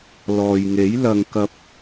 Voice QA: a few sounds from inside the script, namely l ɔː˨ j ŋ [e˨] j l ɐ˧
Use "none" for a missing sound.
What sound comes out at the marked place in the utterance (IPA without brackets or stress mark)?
e˨˥